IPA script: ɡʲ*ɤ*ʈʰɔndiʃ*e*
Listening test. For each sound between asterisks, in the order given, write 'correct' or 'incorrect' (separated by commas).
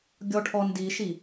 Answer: incorrect, incorrect